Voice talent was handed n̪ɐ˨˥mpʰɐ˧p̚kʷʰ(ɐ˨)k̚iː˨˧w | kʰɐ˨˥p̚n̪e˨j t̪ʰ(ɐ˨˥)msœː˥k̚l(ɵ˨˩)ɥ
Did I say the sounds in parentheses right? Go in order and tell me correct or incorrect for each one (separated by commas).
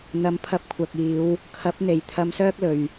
correct, incorrect, incorrect